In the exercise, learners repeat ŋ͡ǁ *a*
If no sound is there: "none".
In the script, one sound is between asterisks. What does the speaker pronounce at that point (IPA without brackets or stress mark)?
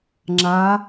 a